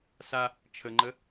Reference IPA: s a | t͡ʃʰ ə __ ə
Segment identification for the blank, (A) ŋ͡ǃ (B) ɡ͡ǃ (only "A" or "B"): A